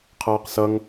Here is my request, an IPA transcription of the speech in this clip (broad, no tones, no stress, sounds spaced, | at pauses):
qʰ ʌː q s ʌ ŋ